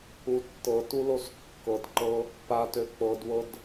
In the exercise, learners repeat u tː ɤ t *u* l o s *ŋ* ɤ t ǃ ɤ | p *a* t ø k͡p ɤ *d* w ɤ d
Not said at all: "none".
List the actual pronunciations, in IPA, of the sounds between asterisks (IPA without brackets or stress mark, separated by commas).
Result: u, kː, a, d